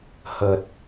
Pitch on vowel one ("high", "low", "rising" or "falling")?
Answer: low